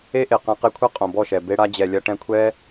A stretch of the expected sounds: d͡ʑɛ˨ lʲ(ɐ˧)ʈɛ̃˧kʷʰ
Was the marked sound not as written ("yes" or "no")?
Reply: no